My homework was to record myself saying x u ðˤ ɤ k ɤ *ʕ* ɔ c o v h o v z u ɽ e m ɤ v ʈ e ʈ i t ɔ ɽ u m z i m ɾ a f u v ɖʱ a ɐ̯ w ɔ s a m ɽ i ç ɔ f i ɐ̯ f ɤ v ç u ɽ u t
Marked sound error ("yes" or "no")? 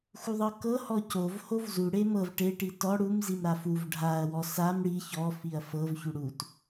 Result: yes